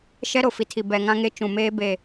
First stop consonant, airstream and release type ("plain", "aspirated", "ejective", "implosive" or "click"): aspirated